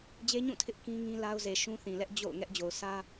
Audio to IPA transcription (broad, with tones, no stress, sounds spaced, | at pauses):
d͡ʑ e˦ ɲ ũ˦˨ tʰ ɪ˦ ʔ k ĩ˦ ŋ ĩ˦ l a˦ ʊ̯ z e˨ ʃ ũ˦ θ ĩ˨ l ɛ˦ ʔ d͡ʑ o̰˦˨ ʊ̯ ŋ ɛ˦ ʔ d͡ʑ o˨ ʊ̯ s ä˦